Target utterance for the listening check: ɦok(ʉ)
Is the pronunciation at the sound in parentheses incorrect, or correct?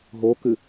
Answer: correct